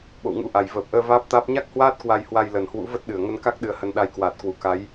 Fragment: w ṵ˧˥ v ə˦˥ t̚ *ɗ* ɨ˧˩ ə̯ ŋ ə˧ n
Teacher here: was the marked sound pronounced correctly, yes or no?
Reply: yes